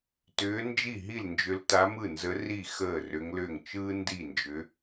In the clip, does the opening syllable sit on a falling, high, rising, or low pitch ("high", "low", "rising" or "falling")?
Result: rising